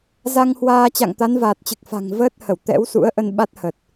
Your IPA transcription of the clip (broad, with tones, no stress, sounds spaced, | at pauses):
z a˧ ŋ h w aː˧ t͡ɕ a̰˧˨ ŋ t̪ a˨˦ n v aː˨˩ t̚ t͡ɕ ɨ˨˩ k̚ f a̤˨˩ ŋ v əː˦˥ t̚ h ə˧˩ w t̪ ɛ̰˧˥ w s ṵ˧˥ ə̯ ʔ ə˧ n ɓ a˦˥ t̚ h ə˨˩ t̚